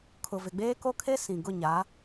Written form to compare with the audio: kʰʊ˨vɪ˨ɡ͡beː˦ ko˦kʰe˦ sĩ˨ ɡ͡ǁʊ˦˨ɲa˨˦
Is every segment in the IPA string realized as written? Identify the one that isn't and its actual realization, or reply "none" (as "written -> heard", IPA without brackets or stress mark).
ɡ͡ǁ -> ɡ